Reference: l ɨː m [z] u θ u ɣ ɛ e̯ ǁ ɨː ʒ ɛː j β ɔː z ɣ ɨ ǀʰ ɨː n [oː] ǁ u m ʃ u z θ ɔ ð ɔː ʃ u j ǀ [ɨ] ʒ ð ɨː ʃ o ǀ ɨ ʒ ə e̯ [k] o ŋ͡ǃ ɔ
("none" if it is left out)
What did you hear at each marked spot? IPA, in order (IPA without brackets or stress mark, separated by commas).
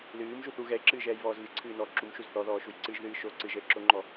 ʒ, ɔː, ɨ, ǁ